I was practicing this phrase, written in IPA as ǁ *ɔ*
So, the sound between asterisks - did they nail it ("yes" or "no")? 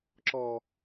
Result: yes